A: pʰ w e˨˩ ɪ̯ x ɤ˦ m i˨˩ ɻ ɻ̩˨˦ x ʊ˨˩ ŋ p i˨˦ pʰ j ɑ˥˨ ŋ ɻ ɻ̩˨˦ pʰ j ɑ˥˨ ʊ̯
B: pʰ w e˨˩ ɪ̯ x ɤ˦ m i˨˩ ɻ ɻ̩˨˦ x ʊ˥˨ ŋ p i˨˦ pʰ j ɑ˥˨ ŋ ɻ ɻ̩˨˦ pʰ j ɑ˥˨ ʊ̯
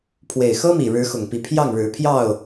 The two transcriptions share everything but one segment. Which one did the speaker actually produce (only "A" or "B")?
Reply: A